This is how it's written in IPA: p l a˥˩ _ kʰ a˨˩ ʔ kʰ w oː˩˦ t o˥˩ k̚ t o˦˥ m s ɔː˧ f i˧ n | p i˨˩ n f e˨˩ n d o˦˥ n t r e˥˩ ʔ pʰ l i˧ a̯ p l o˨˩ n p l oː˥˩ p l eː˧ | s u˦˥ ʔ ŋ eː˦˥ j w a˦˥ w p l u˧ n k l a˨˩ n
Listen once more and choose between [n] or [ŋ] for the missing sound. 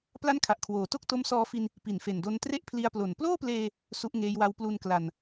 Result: n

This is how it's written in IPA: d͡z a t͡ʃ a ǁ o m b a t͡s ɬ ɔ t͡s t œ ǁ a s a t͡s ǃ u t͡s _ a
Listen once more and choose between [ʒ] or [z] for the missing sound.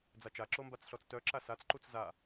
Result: z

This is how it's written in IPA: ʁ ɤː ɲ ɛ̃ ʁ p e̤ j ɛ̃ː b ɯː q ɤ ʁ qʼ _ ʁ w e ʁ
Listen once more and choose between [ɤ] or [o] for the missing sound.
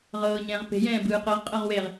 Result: ɤ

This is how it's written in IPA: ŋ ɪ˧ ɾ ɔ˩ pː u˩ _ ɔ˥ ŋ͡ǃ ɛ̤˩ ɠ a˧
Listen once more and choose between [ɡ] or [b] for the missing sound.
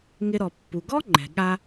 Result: ɡ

